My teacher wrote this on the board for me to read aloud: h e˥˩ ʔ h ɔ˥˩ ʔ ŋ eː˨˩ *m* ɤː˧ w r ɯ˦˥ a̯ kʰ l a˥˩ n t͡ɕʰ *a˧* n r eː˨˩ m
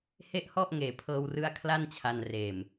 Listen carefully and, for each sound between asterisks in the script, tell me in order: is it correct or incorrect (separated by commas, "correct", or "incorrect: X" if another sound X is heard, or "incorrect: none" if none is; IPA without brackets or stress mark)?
incorrect: pʰ, correct